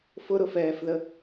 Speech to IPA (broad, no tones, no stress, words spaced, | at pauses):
fʊɾʊfɛːfðə